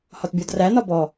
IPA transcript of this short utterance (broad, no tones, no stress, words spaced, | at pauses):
hɒtbʲɔdræ nɒbɔ